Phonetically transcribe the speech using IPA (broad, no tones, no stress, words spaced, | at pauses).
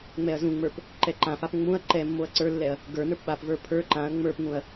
ŋ͡mɛɐ̯zũŋ͡mə˞p | ǃɛǃãfap ŋ͡mũɐ̯ ǃɛmːoɐ̯ ǀə˞lːɛɐ̯ | ɡə˞ nə˞pɓapvə˞ pʰə˞ ǃãɐ̯ ŋ͡mə˞pŋũɐ̯